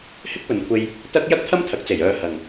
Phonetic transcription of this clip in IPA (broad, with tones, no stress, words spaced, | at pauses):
hɪ˥k̚pɵ˨nkʷʰe˧j | t̪ɐ˥k̚ jɐ˥k̚t̪ʰɐ˥mt̪ʰɐ˨˥k̚ t͡se˨˩jœː˧hɐ˨ŋ